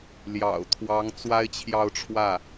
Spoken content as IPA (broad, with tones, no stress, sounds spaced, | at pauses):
l j ɑ̰˨˩ ʊ̯ t̪ʰ w ɑ˧˥ ŋ t͡s w a˥ ɪ̯ t͡ɕʰ j ɑ˥˧ ʊ̯ ʈ͡ʂʰ w ä˥˩